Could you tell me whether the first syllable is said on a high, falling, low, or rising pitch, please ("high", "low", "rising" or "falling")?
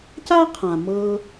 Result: high